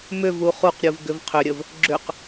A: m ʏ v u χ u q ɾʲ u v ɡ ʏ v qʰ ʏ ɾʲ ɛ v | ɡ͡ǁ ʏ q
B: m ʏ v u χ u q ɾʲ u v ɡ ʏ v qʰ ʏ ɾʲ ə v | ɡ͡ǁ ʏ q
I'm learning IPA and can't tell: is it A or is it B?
B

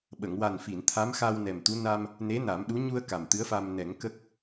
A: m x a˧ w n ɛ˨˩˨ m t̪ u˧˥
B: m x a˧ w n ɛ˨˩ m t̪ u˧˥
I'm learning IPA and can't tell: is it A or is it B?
B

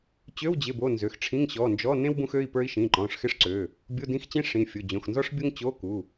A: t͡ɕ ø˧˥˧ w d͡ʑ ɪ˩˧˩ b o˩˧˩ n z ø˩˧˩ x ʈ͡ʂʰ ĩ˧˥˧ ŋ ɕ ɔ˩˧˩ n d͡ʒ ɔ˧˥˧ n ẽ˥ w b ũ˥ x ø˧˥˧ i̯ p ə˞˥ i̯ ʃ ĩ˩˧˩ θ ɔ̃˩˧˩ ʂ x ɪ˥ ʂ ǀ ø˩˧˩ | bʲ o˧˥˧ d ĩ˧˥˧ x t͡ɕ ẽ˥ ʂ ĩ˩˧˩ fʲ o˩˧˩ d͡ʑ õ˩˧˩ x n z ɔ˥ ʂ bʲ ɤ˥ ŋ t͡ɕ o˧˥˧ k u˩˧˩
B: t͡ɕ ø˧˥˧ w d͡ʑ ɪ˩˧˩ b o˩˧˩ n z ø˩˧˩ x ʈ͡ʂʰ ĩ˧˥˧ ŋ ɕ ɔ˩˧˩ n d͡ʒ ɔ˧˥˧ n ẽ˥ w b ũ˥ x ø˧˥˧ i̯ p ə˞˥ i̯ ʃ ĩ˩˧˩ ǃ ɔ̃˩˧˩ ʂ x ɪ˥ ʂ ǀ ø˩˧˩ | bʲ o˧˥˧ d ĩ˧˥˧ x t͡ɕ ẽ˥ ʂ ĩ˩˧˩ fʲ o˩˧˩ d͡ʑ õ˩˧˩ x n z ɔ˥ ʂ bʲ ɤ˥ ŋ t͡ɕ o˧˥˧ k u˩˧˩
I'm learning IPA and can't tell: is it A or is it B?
B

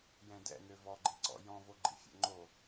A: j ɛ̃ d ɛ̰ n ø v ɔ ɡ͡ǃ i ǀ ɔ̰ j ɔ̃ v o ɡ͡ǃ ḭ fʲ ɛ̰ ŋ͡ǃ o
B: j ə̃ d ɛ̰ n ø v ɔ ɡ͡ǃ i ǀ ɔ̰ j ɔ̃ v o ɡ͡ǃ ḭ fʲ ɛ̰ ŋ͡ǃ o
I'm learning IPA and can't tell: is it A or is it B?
A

